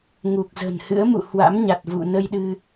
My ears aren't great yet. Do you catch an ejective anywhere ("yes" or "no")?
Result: no